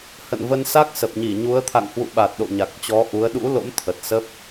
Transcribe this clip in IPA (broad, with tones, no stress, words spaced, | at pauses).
hə̰˧˨nvə˧nsa˦˥k̚ sə˨˩p̚ɲi˧˩ɲu˨˦ə̯ t̪ʰa̰˧˨ŋhwṵ˧˨ɓa˨˩t̚ ɗo̰˧˨ ɲa˨˩k̚t͡ɕɔ˨˦ʔu˨˦ə̯ ɗṵ˧˥lo̰˧˥m t̪ʰə˨˩t̚sə˦˥p̚